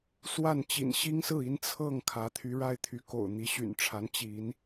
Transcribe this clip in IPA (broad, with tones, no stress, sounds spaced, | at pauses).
s w a˥˩ n t͡ɕ ḭ˨˩ n ɕ i˥ ŋ s ɹ̩˥˩ i˥ n t͡sʰ ɤ˥˩ ŋ kʰ ä˧˥ t̪ʰ y˧˥ ɻ a˥ ɪ̯ t̪ʰ y˧˥ k o̰˨˩ ʊ̯ n̪ i˧˥ ɕ y̰˨˩ n ʈ͡ʂʰ a˧˥ n t͡ɕ i˧˥ n